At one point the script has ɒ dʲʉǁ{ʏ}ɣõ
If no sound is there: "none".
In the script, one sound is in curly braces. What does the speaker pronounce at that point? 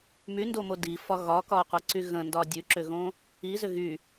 ʏ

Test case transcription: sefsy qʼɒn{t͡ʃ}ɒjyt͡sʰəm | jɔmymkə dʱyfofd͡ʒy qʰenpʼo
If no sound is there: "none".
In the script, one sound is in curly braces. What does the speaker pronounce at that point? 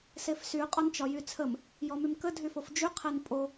t͡ʃ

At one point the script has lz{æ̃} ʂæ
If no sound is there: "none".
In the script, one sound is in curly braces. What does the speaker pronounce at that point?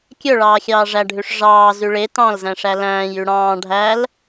æ̃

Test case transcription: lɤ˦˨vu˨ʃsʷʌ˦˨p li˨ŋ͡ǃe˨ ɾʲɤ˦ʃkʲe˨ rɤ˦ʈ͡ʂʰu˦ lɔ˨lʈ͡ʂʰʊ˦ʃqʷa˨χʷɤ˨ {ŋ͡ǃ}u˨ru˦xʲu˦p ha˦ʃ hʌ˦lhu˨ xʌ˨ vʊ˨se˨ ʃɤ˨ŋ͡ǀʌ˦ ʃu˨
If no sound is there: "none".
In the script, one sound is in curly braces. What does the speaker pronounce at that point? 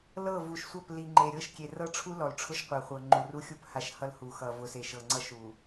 ŋ͡ǃ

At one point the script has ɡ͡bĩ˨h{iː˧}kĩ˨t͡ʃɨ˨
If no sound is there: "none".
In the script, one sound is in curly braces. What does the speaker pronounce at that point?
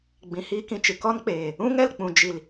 iː˧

